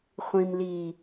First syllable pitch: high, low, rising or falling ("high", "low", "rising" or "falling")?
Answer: low